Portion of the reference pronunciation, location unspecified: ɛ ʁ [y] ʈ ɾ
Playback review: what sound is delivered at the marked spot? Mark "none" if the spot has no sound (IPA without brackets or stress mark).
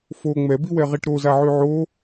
i